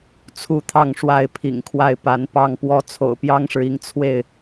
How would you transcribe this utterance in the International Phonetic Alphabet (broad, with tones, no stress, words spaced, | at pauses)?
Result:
t͡sʰu˥˨t̪ʰɑ˥˨ŋʂwa˥˨ɪ̯ pʰḭ˨˩ŋkʰwa˥˨ɪ̯pa˨˦npɑ˥˨ŋ pwɔ˦ t͡sʰo̰˨˩ʊ̯pjɑ˦ŋʂɻ̩˨i˨˦ŋ t͡sʰwe˥˨ɪ̯